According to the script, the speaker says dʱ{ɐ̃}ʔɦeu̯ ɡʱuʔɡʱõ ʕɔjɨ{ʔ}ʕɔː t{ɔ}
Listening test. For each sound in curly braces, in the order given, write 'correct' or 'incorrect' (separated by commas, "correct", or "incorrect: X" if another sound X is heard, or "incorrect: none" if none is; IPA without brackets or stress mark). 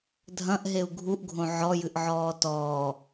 correct, correct, incorrect: ɔː